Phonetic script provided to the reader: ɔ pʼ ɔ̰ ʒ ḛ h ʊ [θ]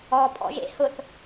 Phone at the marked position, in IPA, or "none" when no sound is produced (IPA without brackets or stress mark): θ